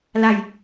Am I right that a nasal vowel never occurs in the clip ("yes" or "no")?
yes